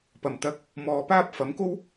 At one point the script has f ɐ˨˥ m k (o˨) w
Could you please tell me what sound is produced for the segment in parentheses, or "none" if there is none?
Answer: o˥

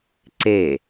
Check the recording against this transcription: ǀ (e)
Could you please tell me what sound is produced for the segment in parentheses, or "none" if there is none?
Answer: e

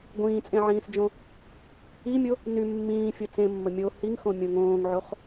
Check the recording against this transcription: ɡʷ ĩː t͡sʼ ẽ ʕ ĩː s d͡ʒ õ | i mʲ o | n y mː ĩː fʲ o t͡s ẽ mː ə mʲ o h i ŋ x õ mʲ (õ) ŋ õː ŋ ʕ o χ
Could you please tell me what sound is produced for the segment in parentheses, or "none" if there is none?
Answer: õ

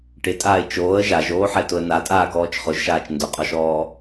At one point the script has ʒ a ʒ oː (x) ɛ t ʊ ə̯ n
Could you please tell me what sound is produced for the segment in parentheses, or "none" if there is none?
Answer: ħ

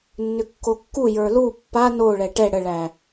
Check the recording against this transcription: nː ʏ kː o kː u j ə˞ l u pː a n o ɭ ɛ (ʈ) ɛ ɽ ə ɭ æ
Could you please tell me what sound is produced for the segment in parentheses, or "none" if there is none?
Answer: ʈ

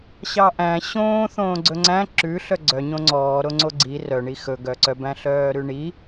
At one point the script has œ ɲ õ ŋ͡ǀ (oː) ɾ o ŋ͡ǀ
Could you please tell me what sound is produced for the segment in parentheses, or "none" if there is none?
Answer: ɔː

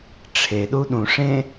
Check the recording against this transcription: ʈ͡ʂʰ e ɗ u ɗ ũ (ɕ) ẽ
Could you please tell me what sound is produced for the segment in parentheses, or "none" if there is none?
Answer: ʂ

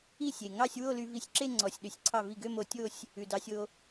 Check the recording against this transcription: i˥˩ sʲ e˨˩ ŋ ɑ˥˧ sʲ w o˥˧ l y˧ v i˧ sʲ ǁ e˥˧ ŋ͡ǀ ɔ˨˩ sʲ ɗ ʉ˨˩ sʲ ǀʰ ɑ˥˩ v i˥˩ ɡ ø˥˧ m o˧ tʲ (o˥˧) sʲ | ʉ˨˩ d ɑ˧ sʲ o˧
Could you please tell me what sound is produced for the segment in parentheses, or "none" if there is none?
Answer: o˥˧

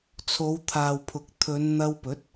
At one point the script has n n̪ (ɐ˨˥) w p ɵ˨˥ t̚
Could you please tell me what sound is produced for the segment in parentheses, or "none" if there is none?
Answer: ɐ˧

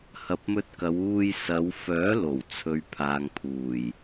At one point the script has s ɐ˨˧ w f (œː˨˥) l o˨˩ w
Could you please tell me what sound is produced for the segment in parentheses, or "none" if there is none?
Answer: œː˨˥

